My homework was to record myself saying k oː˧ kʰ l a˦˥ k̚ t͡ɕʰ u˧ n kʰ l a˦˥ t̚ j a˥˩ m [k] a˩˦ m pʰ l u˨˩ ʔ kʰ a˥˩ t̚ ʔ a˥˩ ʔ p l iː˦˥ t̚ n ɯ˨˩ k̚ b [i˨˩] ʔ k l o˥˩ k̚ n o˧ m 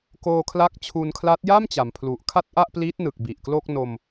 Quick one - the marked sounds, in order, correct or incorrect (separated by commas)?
incorrect, correct